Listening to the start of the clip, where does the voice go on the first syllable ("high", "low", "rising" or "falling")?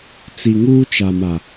low